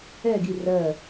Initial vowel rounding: unrounded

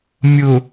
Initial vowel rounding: rounded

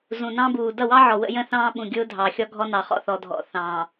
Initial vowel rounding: rounded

